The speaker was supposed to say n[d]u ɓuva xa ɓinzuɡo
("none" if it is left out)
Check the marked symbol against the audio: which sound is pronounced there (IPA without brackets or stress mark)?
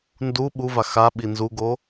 d